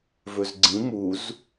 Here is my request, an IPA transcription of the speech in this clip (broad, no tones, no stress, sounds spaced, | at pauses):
v ɵ z ɡ͡ǀ ĩ m u z